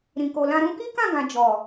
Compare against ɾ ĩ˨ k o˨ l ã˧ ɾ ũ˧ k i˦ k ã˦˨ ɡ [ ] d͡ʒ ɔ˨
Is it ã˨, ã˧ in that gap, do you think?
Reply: ã˨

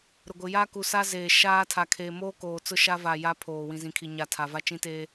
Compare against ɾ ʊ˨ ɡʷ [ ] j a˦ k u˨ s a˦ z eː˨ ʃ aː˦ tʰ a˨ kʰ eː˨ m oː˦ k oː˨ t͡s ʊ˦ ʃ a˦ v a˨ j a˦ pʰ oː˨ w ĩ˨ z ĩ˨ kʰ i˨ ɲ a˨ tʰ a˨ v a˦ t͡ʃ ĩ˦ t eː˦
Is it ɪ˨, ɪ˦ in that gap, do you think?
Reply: ɪ˨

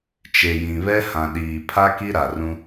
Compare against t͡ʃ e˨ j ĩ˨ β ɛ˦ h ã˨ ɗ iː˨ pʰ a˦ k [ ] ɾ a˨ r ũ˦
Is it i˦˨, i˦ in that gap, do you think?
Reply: i˦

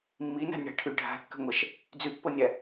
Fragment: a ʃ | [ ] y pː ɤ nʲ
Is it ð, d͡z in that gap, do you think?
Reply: d͡z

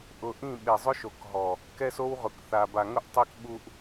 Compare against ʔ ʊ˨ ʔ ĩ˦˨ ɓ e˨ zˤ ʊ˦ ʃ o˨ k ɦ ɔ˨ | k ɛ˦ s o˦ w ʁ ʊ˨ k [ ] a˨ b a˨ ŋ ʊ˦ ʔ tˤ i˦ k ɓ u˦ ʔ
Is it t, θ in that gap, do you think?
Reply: θ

